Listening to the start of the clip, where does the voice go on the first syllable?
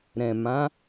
low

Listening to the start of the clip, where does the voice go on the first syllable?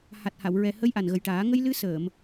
low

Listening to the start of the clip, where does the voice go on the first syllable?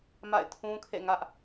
falling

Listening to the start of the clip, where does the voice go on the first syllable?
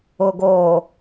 low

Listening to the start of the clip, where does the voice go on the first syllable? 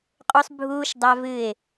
high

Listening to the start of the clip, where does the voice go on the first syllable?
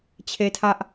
high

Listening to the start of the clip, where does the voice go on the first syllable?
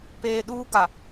low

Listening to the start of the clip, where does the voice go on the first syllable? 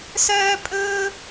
high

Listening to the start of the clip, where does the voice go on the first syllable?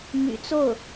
low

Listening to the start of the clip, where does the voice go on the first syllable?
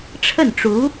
falling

